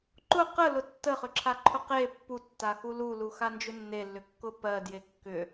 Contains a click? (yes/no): yes